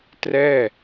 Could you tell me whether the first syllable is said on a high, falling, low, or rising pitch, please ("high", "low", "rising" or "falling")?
falling